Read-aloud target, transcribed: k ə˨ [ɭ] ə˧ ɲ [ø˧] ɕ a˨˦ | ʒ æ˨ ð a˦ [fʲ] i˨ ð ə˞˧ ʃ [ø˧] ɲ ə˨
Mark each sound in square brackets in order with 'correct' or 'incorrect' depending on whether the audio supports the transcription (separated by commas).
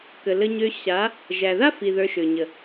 incorrect, correct, incorrect, incorrect